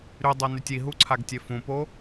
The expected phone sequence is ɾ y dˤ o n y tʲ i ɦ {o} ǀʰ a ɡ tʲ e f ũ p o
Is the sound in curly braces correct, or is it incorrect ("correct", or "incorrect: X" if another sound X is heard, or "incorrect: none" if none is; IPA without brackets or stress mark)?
incorrect: u